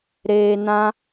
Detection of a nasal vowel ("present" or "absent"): present